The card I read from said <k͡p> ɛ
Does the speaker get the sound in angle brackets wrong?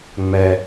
yes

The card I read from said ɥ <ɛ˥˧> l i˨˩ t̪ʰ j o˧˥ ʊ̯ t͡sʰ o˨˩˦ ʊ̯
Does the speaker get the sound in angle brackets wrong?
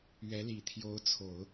yes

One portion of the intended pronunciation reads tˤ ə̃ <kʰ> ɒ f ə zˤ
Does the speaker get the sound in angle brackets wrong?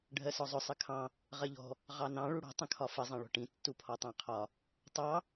no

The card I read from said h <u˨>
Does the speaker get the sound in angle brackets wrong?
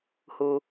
no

